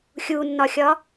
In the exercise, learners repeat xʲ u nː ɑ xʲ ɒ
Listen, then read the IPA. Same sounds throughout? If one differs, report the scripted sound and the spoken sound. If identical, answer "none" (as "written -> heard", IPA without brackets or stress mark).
ɑ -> ɒ